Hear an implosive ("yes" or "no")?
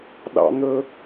yes